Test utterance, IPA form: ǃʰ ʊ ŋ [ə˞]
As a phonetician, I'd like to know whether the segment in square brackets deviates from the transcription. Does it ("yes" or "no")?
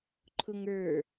no